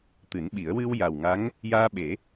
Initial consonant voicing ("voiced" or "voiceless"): voiceless